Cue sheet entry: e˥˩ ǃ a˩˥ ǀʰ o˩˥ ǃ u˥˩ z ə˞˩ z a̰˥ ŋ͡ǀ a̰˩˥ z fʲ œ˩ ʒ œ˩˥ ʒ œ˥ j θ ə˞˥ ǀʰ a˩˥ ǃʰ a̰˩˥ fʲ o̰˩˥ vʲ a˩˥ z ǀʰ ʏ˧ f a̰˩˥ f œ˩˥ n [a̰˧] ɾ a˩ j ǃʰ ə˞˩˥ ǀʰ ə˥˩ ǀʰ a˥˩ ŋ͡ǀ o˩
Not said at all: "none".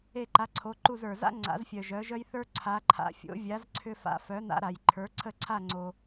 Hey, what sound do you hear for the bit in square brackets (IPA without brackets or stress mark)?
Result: a̰˧